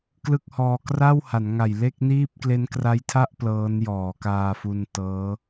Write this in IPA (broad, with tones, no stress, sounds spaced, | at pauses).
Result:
k l ɯ˥˩ k̚ h ɔː˧ k r a˥˩ w h a˩˦ n ŋ a˨˩ j l e˥˩ k̚ n iː˥˩ p̚ k l e˦˥ n k r a˦˥ j tʰ a˥˩ ʔ p l ɤː˦˥ n j ɔː˩˦ k aː˧ f u˧ n t ɤː˦˥